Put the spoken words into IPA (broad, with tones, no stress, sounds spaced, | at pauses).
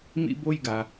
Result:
m ḭ˧ b o˧ j ɡ a˩